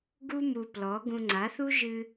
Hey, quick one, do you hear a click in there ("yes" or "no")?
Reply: yes